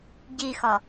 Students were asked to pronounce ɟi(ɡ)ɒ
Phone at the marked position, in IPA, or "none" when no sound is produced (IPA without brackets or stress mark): x